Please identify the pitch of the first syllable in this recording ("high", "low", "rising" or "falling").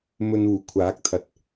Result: low